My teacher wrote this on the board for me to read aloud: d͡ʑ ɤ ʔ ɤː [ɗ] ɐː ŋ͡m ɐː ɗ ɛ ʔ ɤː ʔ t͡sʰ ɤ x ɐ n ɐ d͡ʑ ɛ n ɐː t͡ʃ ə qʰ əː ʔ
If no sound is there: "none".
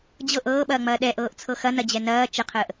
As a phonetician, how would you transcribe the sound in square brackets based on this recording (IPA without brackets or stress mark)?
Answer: ɓ